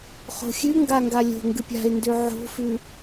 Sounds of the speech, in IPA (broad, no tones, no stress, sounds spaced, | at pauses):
χ o̤ xʲ ʉ ŋ ɡ a ŋ ɡ a lʲ o̤ ŋ ɡ ɨ pʲ a̤ ɪ̯ n d ʉ ʕ o̤ f ʉ